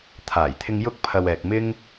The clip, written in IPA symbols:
t̪ʰ aː˨˩ j t̪ʰ ɪ˧ ŋ j ʊ˥ k̚ pʰ ɐ˧ w ɛː˨ k̚ m ɪ˥ ŋ

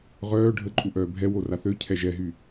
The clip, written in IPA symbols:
ʁ œː ɖʱ ə ǃʼ u ʔ œː bʱ ɛ w o r a θ ø cʰ ɛ ʒ ɛ ɦ y

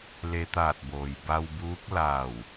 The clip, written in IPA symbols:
l e˧ t̪ aː˧˩ t̚ b oː˩ j b a˧ w b uː˧˥ k̚ l aː˧˩ w

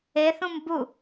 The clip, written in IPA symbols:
e θ ũ m b u

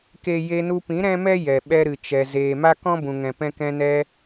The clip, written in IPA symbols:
k e˦ j e˧ n u˧ p ĩ˨˦ ɾ ɛ̃˦ m ɛ˦ j ɛ˨ ɓ ɛ˧ ɾ ɨ˨ t͡ʃ ɛ˨ z eː˨ m a˦ k ɔ̃˦ b ũ˨ ŋ ɛ̃˨ p ɛ̃˧ k ɛ̃˧ n ɛ˧

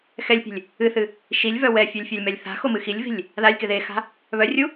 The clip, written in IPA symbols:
x ɛ lʲ pʲ e̤ lʲ | ɨ θ ɨ | ʃ i lʲ v œ w ɛ fʲ œ lʲ fʲ a lʲ m ɛ lʲ θ a̤ x o m ɨ x i lʲ v i̤ lʲ | ð a lʲ k ɪ ð e x a̤ | β œ rʲ u

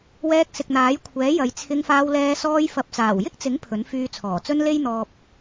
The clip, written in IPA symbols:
w ɛː˧ k̚ s ɪ˨ k̚ n̪ aː˨˥ j kʷʰ ɛː˨˥ j ɐ˨˧ j t͡sʰ ɪ˧ ŋ f aː˧ w l ɛː˧ s ɔː˧ j f ɐ˨ p̚ t͡s aː˨˩ w j ɪ˥ k̚ t͡s ɪ˨˥ ŋ pʰ ɵ˨˥ n f yː˧ t͡sʰ ɔː˨˩ t͡s ɵ˥ n l e˥ j n̪ ɔː˧ p̚

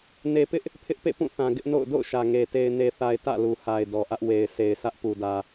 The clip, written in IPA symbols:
n e˨ p ɪ˦ ʔ | pʰ ɪ˦ ʔ p ḛ˦˨ p ũ˦˨ θ ã˨ ɡ ɪ˦ ʔ n o̰˦˨ ʊ̯ d o̰˦˨ ʊ̯ ʃ ä˨ ŋ e˨ t e˨ ɪ̯ n e˨ θ a˨ ɪ̯ t ä̰˦˨ l u˨ h a˨ ɪ̯ d ɔ˨ ʔ ä˦ ʔ w e˨ ɪ̯ s e˨ ɪ̯ s ä˦ ʔ p u˨ d ä˨

